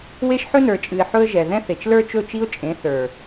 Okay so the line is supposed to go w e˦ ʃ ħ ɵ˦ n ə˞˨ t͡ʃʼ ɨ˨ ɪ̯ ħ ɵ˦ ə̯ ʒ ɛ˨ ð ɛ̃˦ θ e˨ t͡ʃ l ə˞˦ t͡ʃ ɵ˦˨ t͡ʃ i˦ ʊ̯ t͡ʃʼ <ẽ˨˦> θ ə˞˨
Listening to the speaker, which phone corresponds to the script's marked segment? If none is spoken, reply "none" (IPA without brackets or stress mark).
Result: ẽ˨˦